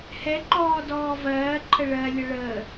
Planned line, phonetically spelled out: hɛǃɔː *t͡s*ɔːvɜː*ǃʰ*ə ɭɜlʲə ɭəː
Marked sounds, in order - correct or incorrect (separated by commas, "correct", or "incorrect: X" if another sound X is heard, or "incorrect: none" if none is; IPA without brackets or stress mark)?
incorrect: d, correct